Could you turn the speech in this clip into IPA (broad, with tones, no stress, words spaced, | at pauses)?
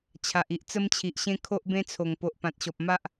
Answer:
t͡ɕʰa˨ʔi˦ʔ t͡sə˦mt͡ɕʰi˨ʔɕẽ˦ kʰo˦ʔbẽ˦t͡sʰo˨˩ŋ po˨ʔpã˨t̚ɕɔ˨p̚ ma˦ʔ